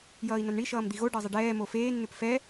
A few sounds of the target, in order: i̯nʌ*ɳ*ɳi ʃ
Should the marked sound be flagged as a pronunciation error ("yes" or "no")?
yes